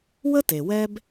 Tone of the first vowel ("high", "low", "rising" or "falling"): high